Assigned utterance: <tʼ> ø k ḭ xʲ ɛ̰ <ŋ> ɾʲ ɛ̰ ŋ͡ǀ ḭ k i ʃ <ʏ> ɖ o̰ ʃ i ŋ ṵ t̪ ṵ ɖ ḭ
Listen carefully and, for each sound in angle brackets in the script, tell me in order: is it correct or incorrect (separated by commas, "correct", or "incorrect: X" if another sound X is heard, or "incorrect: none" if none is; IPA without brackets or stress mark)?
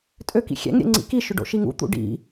correct, correct, correct